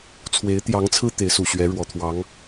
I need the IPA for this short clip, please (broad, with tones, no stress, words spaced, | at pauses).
t͡sʰwe˧˥ɪ̯t̪jɑ˧˥ŋt͡sʰɹ̩˥ t̪e˧˥ɪ̯su˨˩ɕɥɛ˧˥ ɻwɔ˨˩t̪ʰwɑ˧˥ŋ